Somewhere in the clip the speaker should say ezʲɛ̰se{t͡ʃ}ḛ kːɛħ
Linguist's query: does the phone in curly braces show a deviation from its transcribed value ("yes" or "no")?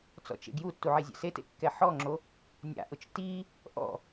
yes